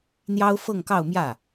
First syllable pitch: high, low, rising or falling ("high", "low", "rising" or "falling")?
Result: high